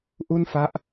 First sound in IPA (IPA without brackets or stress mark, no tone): ʔ